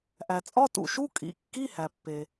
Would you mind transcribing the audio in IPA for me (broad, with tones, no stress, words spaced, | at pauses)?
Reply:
ʔæ˩t͡sʼɒ˧˥˧tṵ˩ʃu˧˥˧ kʼḭ˩ kːi˧˥˧hæ˩pːe˩